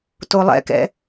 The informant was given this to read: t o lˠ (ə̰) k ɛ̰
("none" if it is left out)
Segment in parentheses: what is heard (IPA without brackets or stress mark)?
ɛ̰